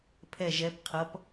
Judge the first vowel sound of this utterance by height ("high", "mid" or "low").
mid